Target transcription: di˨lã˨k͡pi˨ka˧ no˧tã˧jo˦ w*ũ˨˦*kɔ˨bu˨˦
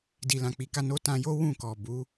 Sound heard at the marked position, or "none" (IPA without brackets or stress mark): ũ˦˨